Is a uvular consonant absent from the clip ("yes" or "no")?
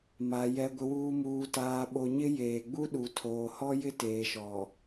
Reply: yes